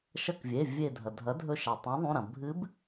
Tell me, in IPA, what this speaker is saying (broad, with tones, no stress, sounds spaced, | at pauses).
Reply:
ʃ ɐ˧˩ k vʲ e˩˧˩ vʲ e˧˩ dʱ ɐ˩ dʱ ɐ˩˥ dʱ ɵ˧˩ ʃ a˩ tˤ ũ˩˥ ðˤ ũ˩˧˩ ɾ ɐ̃˩ bʱ ɨ˧˥ b